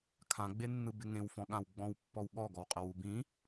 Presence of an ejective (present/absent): present